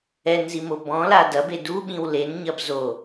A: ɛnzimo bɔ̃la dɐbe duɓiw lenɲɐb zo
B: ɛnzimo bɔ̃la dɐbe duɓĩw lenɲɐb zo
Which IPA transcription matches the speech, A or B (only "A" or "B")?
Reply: B